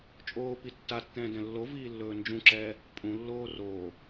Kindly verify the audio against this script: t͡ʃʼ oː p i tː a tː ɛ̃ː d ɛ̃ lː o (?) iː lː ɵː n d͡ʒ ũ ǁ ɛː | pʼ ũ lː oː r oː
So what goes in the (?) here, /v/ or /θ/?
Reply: v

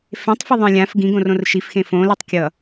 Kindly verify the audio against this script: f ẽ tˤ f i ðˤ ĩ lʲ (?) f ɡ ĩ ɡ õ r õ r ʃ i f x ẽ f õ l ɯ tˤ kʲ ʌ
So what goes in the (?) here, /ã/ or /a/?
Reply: ã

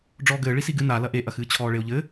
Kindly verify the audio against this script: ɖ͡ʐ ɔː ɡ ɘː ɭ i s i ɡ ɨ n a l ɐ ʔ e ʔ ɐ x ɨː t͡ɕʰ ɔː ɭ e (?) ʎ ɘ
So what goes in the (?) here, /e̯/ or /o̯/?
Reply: o̯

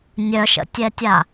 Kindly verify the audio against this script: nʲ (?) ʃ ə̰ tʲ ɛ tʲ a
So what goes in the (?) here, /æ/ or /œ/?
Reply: œ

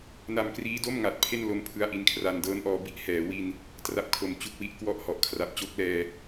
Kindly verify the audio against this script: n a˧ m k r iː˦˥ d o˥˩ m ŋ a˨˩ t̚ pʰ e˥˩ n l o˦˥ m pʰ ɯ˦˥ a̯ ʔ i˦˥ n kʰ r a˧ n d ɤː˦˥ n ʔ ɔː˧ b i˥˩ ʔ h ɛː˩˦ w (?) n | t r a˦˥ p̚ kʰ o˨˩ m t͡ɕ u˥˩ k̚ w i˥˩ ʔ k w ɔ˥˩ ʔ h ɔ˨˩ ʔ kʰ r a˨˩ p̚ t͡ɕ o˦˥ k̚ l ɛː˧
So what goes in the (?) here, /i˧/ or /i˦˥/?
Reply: i˧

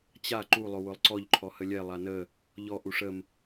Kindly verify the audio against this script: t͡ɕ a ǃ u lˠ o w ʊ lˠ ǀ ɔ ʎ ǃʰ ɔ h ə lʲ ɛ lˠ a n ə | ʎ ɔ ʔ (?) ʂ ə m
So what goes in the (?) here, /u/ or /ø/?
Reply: u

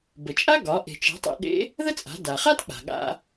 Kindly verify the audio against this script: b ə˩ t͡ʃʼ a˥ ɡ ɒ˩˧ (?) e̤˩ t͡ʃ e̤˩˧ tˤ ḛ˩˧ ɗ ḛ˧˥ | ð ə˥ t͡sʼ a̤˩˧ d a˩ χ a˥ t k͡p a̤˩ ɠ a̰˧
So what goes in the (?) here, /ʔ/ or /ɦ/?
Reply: ʔ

